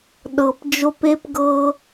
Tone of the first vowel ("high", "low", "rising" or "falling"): low